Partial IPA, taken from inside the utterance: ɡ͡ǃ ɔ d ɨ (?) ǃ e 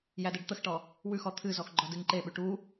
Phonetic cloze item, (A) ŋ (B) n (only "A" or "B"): A